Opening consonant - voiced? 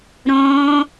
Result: yes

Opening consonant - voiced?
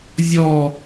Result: yes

